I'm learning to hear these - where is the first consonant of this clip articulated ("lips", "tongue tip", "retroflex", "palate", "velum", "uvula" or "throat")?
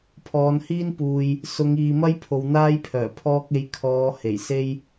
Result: lips